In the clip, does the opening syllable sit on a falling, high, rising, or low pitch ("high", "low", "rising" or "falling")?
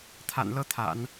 low